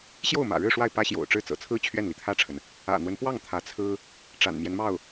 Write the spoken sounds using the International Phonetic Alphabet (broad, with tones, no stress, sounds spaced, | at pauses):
ɕ j o˥˩ ʊ̯ m ä̰˨˩ ɻ ɻ̩˥˧ ʂ w a˥˩ ɪ̯ p ä˥ ɕ j o̰˨˩ ʊ̯ ʈ͡ʂ ɻ̩˥˩ t͡s ɤ̰˨˩ t͡sʰ ɹ̩˥ t͡ɕʰ ɥ ɛ˥˩ n l i˩ t̪ʰ ä˥˩ ʈ͡ʂʰ ə˩ n | ä̰˨˩ n̪ w ə˦ n p w ɑ˥˩ ŋ t̪ʰ ä˧˥ t͡sʰ ɹ̩˥ | ʈ͡ʂ a̰˨˩ n m j ɛ˦ n m ɑ˥˩ ʊ̯